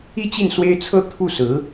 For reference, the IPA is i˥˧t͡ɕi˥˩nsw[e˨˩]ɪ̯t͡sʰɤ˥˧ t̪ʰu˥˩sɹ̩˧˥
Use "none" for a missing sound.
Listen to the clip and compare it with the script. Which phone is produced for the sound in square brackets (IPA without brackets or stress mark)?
e˥